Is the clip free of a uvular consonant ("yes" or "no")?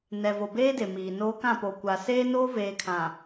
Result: yes